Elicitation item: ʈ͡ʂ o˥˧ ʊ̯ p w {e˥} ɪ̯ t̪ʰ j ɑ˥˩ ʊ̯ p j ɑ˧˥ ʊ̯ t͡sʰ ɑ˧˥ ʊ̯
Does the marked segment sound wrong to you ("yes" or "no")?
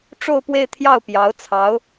yes